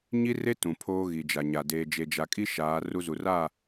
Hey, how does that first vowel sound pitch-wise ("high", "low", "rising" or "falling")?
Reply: high